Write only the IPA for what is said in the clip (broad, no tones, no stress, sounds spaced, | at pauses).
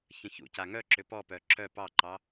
ç ə̃ ç ṵ c a ŋ œ ǁ ʏ p ɔ p œ ǁ œ p ɑ ǃ ɑ